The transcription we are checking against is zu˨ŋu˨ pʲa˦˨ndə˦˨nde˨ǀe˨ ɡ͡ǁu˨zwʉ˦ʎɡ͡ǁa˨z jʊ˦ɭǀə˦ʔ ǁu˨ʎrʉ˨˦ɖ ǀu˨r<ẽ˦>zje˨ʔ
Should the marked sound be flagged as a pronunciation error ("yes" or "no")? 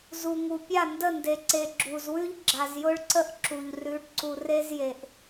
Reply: yes